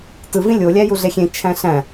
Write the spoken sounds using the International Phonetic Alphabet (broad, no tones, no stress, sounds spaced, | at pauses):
t ɯ v ĩ lʲ o lʲ æ j u ɮ e xʲ ẽ t͡ʃʰ æ̃ ɬ æ̃